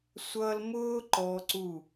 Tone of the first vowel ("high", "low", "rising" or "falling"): high